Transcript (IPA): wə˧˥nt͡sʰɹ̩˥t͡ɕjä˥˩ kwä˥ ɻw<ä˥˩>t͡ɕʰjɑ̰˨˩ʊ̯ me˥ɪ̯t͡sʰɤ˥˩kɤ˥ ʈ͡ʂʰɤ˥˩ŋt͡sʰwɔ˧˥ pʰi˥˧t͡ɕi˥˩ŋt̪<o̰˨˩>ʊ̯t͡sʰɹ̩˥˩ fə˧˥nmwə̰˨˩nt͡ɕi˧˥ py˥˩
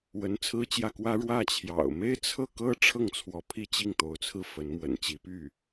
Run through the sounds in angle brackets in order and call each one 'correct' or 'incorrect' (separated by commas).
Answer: correct, incorrect